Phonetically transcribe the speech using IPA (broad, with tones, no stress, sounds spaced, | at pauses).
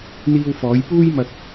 n̪ iː˧ w f ɔː˨˧ j p uː˥ j m ɐ˧ k̚